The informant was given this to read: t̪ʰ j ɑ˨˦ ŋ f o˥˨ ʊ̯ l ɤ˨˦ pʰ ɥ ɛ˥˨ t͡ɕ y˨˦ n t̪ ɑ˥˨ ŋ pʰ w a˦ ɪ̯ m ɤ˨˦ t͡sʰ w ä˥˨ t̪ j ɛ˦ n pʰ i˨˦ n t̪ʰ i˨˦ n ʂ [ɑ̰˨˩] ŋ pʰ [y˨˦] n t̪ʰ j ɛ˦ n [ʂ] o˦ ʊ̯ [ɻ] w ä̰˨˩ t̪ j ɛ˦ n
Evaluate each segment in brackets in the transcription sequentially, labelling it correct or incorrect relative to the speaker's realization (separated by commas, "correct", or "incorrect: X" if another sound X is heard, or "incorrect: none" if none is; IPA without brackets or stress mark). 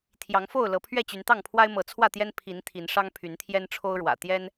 incorrect: ɑ˦, correct, incorrect: ʈ͡ʂʰ, correct